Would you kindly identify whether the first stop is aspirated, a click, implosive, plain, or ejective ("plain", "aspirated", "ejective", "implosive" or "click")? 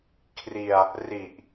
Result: aspirated